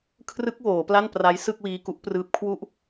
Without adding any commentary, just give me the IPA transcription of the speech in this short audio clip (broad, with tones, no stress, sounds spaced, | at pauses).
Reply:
kʰ r ɯ˦˥ k̚ w oː˩˦ p l a˥˩ n p r a˦˥ j s ɯ˥˩ k̚ w iː˧ k u˦˥ ʔ p r ɯː˦˥ p̚ kʰ w u˦˥ ʔ